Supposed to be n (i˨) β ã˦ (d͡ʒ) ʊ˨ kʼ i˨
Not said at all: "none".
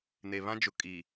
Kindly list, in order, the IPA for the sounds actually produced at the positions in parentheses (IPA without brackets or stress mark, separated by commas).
e˨, d͡ʒ